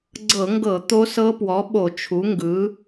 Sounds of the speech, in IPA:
ɡ͡ǀɤ˧˩˧ŋɡɤ˧˩˧ t̪o˦˥sɤ˦˥pwɔ˩˥ ɓo˧˩˧t͡ʃʰu˩˥ŋɡɯ˩˥

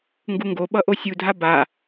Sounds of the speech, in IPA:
ŋɡuŋɡoɓʌ ʔosʲudʱa ba

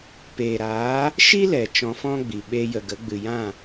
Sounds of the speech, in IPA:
peː˨ɾaː˨˦ | ʃi˦lɛ˨ t͡ʃɔ̃˧fɔ̃˦ɡ͡bi˨ ɓeː˧jə˨ɡə˨˦ ɡ͡bɨ˨jã˦˨

